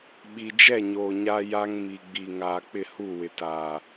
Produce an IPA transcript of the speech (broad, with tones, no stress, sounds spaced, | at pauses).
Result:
ɓ i˨ d͡ʒ ɛ˦˨ ɲ oː˨ ɲ a˦ j a˦ ŋ m i˨ ɡ͡b i˨ ŋ aː˨ k͡p ɪ˦˨ h u˦˨ w ɪ˨ t aː˨